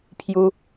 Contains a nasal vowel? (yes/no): no